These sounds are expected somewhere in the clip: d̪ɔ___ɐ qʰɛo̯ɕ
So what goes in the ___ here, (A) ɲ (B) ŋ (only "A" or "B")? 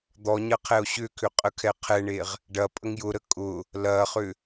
A